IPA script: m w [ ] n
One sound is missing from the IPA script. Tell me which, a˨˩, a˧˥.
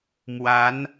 a˧˥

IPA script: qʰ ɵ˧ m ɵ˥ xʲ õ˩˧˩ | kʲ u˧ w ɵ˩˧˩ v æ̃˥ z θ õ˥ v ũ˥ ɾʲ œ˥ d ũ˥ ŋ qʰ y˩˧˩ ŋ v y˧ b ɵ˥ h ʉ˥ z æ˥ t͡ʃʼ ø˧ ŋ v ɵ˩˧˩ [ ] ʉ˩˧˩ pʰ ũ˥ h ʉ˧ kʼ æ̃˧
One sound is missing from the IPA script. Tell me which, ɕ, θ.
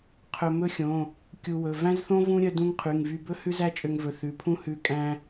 θ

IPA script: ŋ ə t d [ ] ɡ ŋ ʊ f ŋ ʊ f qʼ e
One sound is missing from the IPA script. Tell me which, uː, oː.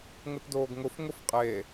oː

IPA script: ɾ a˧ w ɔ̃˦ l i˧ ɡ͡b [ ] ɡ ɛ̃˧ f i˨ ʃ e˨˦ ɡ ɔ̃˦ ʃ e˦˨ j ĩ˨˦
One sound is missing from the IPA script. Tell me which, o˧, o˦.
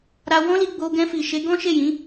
o˧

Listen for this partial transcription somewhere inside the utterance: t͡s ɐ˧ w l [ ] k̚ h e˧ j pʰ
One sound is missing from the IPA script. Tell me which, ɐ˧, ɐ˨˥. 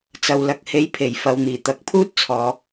ɐ˧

